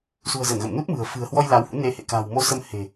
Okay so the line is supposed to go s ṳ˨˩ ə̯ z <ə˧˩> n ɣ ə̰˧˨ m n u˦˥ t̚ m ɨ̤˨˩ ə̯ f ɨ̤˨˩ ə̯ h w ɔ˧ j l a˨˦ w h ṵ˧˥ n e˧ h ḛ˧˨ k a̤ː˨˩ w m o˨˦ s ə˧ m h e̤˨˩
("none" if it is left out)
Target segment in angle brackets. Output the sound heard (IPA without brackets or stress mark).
ə˧˩